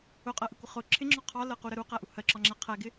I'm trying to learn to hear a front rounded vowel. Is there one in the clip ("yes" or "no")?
no